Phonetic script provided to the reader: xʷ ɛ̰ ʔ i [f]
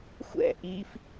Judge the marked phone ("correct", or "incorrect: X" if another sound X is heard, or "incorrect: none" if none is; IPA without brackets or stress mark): correct